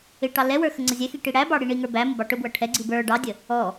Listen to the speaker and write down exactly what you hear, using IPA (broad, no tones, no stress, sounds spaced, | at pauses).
ɪ ʈ ɑ l ɛ w ə˞ x ə ŋ͡ǀ ʌ zʲ ɛ x i ʈ i ɽ æ b ɑ ɽ i ɳ i ŋ ə˞ b æ m ə b ɑ ʈ ʊ b w ʌ ʈʰ ɛ ɡ͡ǀ i b ə˞ ɖ ɑ dʲ ə | ɔ